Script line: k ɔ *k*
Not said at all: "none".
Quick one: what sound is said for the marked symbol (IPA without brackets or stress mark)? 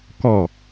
none